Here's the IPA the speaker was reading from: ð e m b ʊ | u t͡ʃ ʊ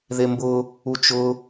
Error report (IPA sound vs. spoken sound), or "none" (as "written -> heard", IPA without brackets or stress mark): none